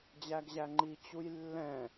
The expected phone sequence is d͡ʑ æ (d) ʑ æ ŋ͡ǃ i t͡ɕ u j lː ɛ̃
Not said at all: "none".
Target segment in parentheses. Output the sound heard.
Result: ɡ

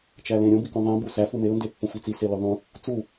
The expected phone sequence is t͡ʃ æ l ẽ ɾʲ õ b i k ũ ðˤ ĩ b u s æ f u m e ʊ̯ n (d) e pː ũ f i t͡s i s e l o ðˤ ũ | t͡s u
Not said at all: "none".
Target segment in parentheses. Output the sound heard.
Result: d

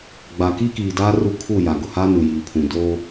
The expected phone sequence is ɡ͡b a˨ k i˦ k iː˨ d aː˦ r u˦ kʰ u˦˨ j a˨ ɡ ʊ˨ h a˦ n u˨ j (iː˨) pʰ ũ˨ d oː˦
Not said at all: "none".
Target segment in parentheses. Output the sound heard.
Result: iː˨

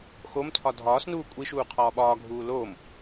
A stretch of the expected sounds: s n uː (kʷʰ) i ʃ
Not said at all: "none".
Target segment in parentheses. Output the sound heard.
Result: kʷʼ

